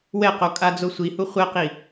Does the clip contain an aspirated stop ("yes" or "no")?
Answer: no